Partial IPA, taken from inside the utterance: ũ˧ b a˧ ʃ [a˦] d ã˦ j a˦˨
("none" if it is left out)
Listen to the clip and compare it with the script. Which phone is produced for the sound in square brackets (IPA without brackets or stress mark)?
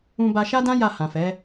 a˦